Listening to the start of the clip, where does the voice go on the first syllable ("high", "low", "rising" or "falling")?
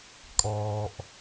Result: low